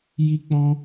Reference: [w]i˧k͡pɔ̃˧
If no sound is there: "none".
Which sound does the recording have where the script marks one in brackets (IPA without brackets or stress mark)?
j